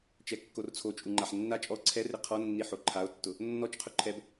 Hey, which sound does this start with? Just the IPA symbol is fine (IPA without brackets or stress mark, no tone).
t͡ʃ